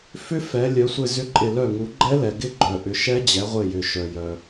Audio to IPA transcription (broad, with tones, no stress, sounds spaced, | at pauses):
f ʏ˦˥ f ɛ˩˧ lʲ œ˩˧ sʷ ɪ˧˩ z ʏ˦˥ ǃʼ ɪ˧˩ l œ˧˩ ŋ u˩˧ ɡ͡ǃ ɛ˦˥ l ɛ˩ ɡ ɪ˦˥ ɡ͡ǃ œ˩ ʔ ʏ˩˧ ʃ ɛ˦˥ d͡ʑ ɛ˩˧ ʁʷ ɪ˧˩ j ʏ˩ ʃ œ˩ j œ˩